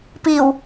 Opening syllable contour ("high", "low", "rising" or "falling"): low